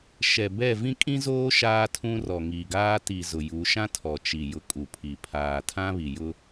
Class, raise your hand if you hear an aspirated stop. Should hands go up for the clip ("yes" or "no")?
yes